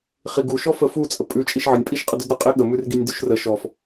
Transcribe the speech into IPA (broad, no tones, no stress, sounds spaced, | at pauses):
χ i ɡ u ʃ ɔ f ə f u t͡sʼ ə pʼ ʉ t͡ʃʼ i ʃ ʕ ə nʲ pʼ i ʃ qʼ ə d ʉ d ɾ ə qʼ e ɠ ə m ʉ r ɡ i nʲ d ʉ ʃ r ə ʃ ɔ f